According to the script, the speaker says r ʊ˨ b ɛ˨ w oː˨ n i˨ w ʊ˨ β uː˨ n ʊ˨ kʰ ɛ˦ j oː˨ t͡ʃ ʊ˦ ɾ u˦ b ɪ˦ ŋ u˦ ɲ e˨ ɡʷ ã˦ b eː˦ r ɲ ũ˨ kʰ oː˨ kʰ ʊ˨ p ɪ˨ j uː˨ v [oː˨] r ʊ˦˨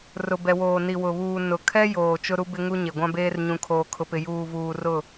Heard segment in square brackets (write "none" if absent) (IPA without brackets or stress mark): uː˨